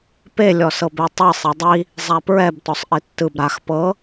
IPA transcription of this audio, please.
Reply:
p e lʲ ɔ s ɤ b e tˤ ɯ sˤ i dˤ i | zˤ a p ɹ ɛ b t ɔ sˤ ʔ i tː ɯ b ɾ a x p ɤ

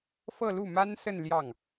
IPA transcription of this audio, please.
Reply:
f ɤ˥˧ l u˥˩ m a˥ n s ə˥˧ n l j ɑ˥˩ ŋ

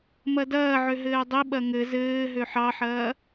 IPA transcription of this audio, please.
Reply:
m ɐ d ɐː ʕ ø ɦ ɘː dˤ i ɓ ɐ ŋ ɘ z ɘː ɦ ø ħ ɑ ħ ɐː

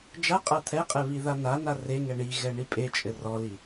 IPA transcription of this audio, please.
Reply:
d͡ʒ a qʼ a t̪ʰ ɛ qʼ ɛ β i ð a n a n a r e ŋ ɛ ɳ i ɣ ɛ ɳ i pʼ e t͡ʃʼ ɘ r ɔ l i

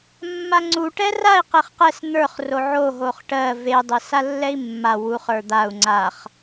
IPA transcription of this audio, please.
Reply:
mː a ŋ͡ǀ u ʈ ɛ r a i̯ q e χ q ɛ s n̪ ə˞ χ r o ʕ o ɦ o χ ʈ ɜ v e dˤ e s a lː ɛ i̯ mː a w u χ ə˞ d̪ a u̯ ŋ͡ǀ a χ

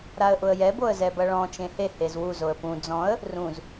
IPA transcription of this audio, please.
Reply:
ɾ a ə̯ ʔ ʊ ə̯ j ɛ b o ə̯ z ɛ b ɐ ɭ ɔ̃ t͡ʃ ẽ h e h e z w u z o ə̯ p ũ d͡z ɔ̃ ə̯ | r ũ z

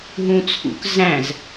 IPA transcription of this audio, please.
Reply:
ɦ ũ t͡sʰ ṵ k z æ̃ z

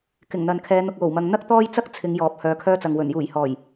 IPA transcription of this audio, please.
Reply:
k ɪ˨˩ ŋ n̪ ɐ˨ n kʰ ɛː˨˧ n̪ ʊ˨ k̚ w o˨˩ w m ɐ˨ ŋ n̪ ɐ˥ k̚ t̪ ɔː˥ j t͡s ɐ˥ k̚ t͡sʰ ɪ˨˧ ŋ j ɔː˨ p̚ h œː˨˧ kʰ œː˧ t͡s ɐ˨ ŋ w ɵ˨˩ n j uː˨˩ j h ɔː˨˩ j

